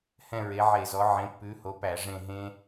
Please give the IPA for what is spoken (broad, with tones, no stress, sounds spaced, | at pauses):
h ɛ̃˦˨ ɹ e˨˦ ʕ e˧˩˧ z ɔ˨˦ ʕ ẽ˨˦ pː ʉ˨˦ h o˨˦ p æ˧˩˧ ʐ ẽ˦˨ ɦ ẽ˦˥